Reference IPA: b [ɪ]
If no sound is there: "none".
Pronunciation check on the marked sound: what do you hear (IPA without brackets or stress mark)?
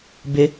ɪ